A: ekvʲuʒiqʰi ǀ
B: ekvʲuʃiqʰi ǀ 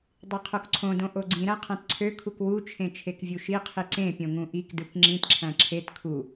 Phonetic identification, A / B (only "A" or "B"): B